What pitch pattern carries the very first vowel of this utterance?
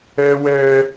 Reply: high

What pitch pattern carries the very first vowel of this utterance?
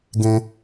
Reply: low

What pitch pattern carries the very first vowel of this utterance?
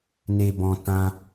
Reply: low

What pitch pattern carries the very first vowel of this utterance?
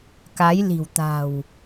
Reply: rising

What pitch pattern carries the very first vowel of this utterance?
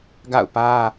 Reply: falling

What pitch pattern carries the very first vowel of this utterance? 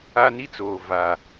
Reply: high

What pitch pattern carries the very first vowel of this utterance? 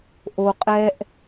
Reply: low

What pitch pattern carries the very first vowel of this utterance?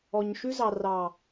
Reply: low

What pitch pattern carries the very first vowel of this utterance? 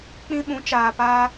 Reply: high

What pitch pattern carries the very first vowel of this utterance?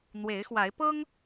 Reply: rising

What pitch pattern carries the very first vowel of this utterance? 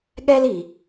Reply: high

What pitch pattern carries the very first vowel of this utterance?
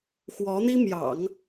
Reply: rising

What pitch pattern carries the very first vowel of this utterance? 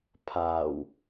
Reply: low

